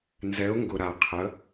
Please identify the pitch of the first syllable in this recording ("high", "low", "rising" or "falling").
rising